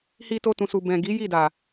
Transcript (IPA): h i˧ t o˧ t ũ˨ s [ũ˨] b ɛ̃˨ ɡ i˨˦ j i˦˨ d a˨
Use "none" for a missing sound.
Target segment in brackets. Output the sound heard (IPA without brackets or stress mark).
u˨